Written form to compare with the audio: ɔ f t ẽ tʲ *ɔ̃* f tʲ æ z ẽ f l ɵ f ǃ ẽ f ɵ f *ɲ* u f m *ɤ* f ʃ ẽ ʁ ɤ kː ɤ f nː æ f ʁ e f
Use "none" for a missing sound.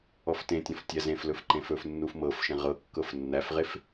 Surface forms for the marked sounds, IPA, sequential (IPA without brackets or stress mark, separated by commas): ɔ̃, nː, ɤ